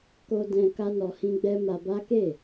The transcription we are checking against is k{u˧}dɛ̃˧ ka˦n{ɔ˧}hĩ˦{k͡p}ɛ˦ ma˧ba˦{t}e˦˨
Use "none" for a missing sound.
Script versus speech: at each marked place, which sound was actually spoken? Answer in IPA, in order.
o˧, ɔ˧, ɡ͡b, k

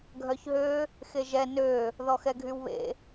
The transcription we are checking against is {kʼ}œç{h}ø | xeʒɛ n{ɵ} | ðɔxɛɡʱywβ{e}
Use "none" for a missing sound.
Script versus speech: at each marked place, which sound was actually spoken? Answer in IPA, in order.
ɡʱ, ɦ, ø, ḛ

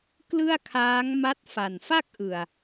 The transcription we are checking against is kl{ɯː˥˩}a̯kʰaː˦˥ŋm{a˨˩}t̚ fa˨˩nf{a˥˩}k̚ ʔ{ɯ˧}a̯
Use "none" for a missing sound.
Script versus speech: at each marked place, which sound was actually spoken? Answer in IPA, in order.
ɯ˥˩, a˦˥, a˥˩, ɯ˨˩

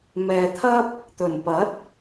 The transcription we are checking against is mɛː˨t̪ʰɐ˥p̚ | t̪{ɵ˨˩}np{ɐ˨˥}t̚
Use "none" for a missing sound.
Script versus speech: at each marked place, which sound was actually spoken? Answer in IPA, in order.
ɵ˨˩, ɐ˨˥

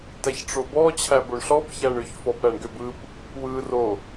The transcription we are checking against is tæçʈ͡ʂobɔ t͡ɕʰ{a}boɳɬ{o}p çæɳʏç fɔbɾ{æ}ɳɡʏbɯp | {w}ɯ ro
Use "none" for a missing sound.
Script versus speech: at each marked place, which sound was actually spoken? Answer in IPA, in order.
æ, ɔ, æ, w

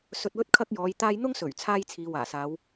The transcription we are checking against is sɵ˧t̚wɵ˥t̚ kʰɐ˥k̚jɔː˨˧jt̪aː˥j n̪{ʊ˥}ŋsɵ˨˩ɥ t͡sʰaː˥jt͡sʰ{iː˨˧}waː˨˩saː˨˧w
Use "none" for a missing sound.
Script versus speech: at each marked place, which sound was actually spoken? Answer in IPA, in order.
ʊ˥, iː˨˧

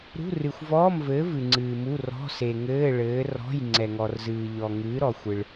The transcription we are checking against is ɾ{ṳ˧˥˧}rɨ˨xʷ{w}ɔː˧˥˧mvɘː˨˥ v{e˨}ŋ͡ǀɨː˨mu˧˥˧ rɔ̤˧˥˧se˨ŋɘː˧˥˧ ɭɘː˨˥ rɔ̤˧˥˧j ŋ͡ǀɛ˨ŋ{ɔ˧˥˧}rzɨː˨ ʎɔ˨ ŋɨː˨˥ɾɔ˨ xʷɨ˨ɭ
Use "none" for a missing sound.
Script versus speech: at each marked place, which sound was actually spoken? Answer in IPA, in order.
ṳ˧˥˧, v, ɨ˨, ɔ˨

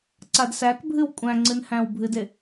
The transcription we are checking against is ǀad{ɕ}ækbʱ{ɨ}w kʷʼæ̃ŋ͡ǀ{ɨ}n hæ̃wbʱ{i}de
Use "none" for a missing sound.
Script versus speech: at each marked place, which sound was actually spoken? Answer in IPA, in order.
s, ɨ, ɨ, ɨ

